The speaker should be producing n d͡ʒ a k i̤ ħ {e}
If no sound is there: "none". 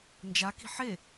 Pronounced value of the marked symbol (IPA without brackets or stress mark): e